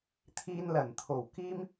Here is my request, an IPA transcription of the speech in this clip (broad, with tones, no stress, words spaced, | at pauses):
t̪ʰiː˧nlɐ˨˩nt̪ʰo˨˩w kiː˥m